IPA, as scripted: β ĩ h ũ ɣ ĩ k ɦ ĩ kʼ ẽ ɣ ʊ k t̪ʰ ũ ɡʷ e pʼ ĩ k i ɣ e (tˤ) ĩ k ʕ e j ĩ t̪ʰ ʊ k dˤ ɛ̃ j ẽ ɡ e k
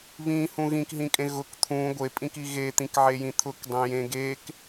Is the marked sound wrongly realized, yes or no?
yes